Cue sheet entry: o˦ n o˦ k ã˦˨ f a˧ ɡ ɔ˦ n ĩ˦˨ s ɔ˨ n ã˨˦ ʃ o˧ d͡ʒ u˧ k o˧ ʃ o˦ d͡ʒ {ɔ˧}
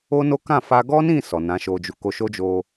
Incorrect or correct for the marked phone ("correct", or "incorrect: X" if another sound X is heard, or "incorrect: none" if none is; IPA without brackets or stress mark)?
incorrect: o˧